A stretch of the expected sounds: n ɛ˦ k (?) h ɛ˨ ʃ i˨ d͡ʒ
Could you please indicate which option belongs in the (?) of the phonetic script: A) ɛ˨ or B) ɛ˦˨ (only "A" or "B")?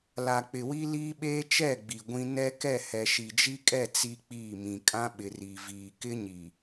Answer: B